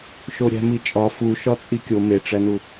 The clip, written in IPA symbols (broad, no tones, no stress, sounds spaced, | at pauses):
ʃ o ɾʲ æ̤ m i t͡ʃʼ ɒ f u ʃ ɒ t͡sʼ i kʲ o m e ʈ͡ʂ æ n u